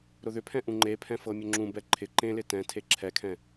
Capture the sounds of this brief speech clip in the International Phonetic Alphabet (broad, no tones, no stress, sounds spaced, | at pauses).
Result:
ɾ ʊ ð ʏ pʰ ɛ̃ ʔ ũ ŋ͡ǃ e pʰ ɛ̃ f ɤ mʲ ʊ ŋ͡ǁ ũ b ɛ ǃʰ ɪ ǃ ẽ l ɪ t ɛ̃ tʰ e ǁʰ ɛ kʰ ɛ̃